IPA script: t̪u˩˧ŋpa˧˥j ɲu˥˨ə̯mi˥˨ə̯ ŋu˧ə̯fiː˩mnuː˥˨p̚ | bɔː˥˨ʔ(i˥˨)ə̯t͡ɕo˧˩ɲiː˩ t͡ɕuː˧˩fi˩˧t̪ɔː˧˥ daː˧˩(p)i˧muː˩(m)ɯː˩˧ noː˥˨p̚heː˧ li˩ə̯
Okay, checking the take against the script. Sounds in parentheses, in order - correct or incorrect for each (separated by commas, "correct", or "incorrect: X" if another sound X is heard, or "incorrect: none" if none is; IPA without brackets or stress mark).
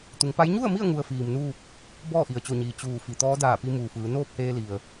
incorrect: i˩, correct, incorrect: f